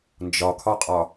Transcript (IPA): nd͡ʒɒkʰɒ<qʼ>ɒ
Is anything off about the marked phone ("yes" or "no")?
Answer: no